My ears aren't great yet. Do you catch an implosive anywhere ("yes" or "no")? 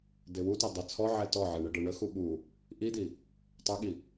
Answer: yes